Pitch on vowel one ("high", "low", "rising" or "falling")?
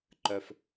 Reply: low